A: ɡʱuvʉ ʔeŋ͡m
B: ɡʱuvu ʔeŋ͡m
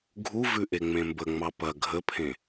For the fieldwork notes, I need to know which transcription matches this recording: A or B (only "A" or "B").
A